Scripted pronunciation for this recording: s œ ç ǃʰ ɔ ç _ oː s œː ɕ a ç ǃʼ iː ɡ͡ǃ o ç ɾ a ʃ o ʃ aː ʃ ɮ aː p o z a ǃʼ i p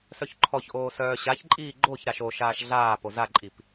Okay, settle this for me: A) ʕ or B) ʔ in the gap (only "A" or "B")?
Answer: B